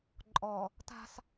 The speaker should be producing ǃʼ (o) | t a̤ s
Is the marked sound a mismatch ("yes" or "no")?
yes